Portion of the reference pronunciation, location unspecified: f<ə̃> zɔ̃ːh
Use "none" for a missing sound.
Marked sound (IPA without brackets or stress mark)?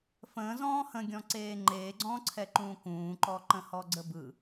ə̃ː